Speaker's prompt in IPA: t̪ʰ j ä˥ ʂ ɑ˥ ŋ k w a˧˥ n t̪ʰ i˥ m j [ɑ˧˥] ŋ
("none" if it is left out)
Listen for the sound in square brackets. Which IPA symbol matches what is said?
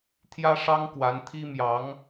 ɑ˧˥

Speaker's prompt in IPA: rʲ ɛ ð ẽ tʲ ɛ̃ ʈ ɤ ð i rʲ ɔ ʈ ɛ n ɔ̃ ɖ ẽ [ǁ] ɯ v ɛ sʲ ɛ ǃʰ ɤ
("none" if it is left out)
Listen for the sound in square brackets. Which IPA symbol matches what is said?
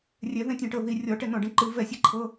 ǃ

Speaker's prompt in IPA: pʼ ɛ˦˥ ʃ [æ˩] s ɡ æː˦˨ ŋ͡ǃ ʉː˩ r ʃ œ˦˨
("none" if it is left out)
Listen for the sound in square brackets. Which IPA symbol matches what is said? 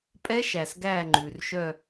æ˩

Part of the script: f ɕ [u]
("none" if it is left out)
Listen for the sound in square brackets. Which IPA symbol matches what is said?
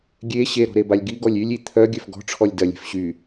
y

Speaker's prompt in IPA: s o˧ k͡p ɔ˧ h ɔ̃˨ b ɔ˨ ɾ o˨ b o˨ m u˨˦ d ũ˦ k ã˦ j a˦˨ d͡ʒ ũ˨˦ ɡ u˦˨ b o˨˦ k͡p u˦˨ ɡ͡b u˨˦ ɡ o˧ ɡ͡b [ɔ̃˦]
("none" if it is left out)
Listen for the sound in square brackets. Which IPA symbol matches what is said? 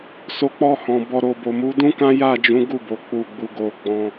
ɔ̃˧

